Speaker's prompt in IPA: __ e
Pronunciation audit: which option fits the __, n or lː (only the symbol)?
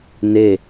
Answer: n